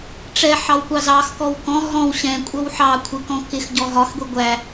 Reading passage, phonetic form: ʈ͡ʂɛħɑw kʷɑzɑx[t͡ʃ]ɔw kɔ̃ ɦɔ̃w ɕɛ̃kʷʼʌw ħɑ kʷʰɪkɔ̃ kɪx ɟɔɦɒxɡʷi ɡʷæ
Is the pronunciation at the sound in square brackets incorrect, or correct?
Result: incorrect